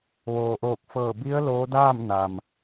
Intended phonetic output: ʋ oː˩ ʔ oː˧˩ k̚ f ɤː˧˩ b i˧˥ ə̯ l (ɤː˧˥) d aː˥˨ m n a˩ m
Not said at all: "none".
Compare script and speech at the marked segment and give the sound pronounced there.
oː˧˥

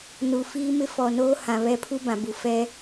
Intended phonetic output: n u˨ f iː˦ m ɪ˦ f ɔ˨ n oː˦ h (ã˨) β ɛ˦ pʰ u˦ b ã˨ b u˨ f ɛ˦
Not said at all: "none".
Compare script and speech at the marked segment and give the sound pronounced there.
ã˨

